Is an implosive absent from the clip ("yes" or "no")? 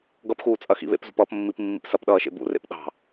no